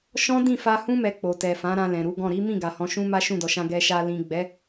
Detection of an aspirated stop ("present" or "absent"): absent